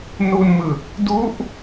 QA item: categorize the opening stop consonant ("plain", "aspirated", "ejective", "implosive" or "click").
plain